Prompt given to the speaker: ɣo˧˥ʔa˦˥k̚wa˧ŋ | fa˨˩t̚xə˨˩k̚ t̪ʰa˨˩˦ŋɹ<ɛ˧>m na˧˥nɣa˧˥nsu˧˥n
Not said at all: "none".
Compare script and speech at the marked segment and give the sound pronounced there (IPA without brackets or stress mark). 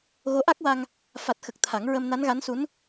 ə˧